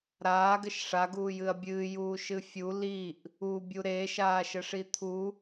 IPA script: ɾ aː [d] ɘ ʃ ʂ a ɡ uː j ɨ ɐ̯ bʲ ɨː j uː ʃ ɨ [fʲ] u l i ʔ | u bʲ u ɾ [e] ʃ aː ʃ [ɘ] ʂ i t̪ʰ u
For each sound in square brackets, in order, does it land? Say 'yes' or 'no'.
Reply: no, yes, no, yes

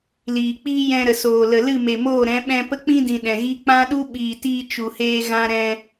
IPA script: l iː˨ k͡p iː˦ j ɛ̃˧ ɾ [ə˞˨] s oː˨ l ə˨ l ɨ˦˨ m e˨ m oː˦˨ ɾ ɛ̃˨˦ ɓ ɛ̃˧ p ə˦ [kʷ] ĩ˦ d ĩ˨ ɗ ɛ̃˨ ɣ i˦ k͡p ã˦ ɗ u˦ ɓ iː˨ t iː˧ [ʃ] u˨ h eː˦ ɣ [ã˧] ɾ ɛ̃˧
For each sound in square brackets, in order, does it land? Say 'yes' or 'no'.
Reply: no, no, no, no

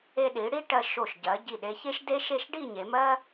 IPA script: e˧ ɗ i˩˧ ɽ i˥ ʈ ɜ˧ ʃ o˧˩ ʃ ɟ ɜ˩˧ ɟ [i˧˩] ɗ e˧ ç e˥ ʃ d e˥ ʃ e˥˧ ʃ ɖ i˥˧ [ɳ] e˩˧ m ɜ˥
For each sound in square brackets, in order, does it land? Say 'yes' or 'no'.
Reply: yes, no

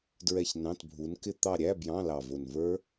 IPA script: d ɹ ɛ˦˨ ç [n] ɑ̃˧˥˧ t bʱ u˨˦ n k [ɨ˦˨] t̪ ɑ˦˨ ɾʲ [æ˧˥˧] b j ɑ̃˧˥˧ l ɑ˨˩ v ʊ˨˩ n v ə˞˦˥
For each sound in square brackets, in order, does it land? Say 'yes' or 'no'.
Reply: yes, no, yes

